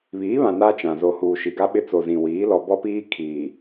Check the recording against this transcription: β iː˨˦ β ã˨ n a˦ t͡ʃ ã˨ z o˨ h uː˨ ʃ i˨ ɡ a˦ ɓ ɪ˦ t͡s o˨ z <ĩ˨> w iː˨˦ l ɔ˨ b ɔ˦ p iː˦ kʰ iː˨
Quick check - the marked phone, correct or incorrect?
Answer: correct